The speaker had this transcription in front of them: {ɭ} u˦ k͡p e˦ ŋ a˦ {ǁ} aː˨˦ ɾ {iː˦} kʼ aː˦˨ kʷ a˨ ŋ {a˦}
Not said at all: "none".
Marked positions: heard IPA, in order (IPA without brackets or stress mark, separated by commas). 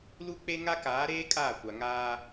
l, k, eː˦, aː˦